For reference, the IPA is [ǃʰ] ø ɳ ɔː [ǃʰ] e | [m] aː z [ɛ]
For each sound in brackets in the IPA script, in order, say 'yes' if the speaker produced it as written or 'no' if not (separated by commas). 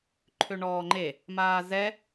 yes, no, yes, yes